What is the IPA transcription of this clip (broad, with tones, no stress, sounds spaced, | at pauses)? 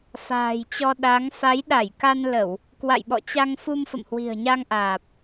f a̤ː˨˩ j t͡ɕ ɔ˧ ɗ a˨˦ ŋ f a˨˦ j ɗ a˧˩ j k a˧ n l ə˧˩˨ w | k w a̰˧˨ j ɓ ɔ̰˧˨ t͡ɕ a˧ ŋ f u˧ m f ə̰˧˨ m h w i̤˨˩ ə̯ ɲ a˧ ŋ ʔ aː˨˩ p̚